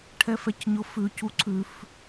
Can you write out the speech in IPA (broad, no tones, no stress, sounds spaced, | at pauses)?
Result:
ʈʰ ɛ f ɛ c ɲ ʊ f ʉ c u ǀʰ ʉ f